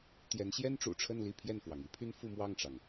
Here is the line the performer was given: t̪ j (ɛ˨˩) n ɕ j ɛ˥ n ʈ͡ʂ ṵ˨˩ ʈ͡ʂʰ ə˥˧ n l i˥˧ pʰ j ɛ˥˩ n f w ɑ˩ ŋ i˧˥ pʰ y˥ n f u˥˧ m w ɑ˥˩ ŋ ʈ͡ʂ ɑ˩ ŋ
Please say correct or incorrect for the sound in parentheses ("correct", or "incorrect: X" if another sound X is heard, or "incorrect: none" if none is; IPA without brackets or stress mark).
incorrect: ɛ˧˥